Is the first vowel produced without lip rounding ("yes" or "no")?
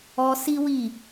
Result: no